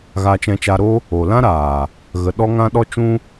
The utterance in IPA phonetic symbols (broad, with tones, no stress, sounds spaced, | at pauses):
ɣ a˧ t͡ʃ ɛ̃˧ t͡ʃ a˧ ɾ o˦ | o˨ l ã˦ ɾ aː˨ | ɣ ə˧ ɗ ɔ˦ ŋ ã˦ ɗ ɔ˦ t͡ʃ ũ˦